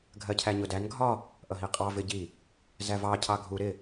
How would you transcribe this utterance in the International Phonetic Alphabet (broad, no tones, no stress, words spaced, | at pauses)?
ɡʱɜcʰæɲʊdæn ɡʱɒ | ʔʌɦiqʼɑ vɪɟi | zævɑ cʰɑɡʱu ɾɪ